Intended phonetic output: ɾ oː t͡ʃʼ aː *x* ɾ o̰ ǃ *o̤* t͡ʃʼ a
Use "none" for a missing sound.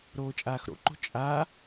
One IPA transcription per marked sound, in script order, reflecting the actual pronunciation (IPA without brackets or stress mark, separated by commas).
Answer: x, o̤